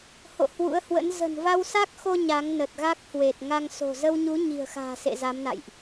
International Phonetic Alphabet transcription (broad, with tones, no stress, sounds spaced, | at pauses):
h o̰˧˨ h w ṵ˧˥ ə̯ h w ə̰˧˥ n z ə̤˨˩ n v a˧ w s a˦˥ k̚ x o˧ ɲ a˨˦ ŋ n ə˨˩ t̚ ɣ a˦˥ k̚ h w e˨˩ t̚ ŋ a˧ ŋ s o̤˨˩ z ə˧ w ɲ u˨˦ ɲ i̤˨˩ ə̯ x a̤ː˨˩ s ḛ˧˨ z a˨˦ m n a̰˧˨ j ʔ